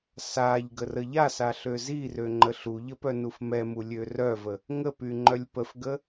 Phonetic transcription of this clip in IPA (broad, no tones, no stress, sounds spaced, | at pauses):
s a ʎ ɡ ə r ə ʎ a s a ɬ ø z i r ø ŋ͡ǃ ə ɬ u ʎ ə p œ n u f m ɛ m u lʲ ø r œ v ə | ŋ ə p y ŋ͡ǃ œ lʲ p ə f ɡ ə